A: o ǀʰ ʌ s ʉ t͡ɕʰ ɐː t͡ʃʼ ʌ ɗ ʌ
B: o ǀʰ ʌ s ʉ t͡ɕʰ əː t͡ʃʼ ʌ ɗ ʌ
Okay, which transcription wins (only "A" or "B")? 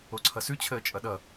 B